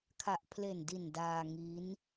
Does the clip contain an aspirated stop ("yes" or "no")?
yes